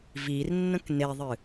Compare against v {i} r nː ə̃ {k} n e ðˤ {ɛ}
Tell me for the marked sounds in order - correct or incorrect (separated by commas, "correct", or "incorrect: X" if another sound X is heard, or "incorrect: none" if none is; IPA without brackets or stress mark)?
correct, correct, incorrect: ɨ